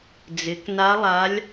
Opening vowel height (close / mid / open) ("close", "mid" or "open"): close